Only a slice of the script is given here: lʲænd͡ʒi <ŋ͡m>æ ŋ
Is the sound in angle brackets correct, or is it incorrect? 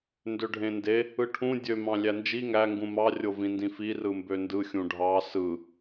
incorrect: ŋ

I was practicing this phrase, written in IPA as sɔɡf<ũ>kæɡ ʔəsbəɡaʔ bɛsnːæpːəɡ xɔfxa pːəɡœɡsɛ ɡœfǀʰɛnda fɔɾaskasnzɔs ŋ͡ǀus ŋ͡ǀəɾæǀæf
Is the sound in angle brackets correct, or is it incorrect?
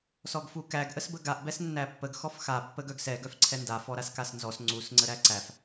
incorrect: u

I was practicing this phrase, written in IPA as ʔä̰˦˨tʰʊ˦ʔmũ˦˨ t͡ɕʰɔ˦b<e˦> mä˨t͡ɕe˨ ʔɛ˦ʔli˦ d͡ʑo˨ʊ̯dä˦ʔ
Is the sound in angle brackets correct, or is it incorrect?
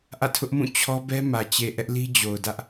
incorrect: ɛ˦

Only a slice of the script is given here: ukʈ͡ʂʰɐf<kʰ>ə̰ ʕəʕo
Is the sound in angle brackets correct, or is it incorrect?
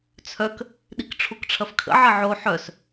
correct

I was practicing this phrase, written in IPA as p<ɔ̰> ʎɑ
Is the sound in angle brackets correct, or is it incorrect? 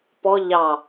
incorrect: ɔ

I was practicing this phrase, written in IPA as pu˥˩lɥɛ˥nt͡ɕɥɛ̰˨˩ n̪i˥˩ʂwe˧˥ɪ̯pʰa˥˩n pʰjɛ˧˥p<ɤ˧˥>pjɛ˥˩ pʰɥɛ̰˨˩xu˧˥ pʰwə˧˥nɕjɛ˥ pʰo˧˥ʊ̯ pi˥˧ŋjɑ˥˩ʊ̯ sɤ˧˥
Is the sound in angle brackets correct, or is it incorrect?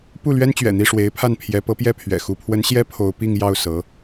correct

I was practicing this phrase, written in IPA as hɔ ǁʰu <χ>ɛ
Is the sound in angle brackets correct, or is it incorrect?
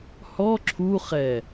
correct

